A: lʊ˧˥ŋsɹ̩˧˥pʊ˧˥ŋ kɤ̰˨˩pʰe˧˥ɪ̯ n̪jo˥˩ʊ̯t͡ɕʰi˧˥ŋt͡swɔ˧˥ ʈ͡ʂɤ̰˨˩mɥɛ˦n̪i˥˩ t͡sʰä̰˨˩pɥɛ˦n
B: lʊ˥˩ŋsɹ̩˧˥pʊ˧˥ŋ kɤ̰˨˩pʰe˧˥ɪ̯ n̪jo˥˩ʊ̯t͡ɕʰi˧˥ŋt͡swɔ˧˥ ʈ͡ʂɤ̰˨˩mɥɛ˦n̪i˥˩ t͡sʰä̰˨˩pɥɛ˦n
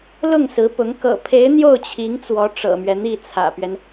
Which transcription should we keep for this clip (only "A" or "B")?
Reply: B